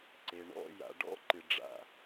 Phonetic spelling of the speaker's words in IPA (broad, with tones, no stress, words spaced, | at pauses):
ǀe˩ ɳɔ̰˧˩ja̰˩ ɖɔ̰˥˧ǃɨ˩ɖ͡ʐa̰˧˩